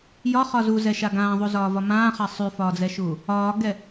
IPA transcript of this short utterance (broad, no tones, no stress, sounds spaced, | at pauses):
j ɒ χ ɒ z u z ɛ ʃ a ɡ ãː ðˤ u z ɒː v ɒ m ãː χ a sˤ y f ɒː d͡z ɛ ʃ uː | ɒː ɡ ɛ